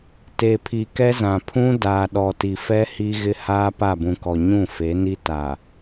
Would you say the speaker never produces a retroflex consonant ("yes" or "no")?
yes